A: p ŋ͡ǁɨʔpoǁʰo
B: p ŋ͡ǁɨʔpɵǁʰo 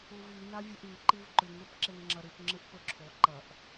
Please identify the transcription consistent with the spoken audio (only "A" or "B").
B